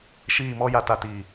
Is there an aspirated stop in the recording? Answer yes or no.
no